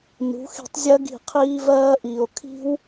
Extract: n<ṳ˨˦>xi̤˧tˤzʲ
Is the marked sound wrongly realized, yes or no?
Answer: no